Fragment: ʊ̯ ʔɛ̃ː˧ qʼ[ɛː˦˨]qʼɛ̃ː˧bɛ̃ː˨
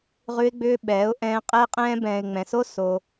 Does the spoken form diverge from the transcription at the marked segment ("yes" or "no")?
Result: yes